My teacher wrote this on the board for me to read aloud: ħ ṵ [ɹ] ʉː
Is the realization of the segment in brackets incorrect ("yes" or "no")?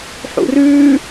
yes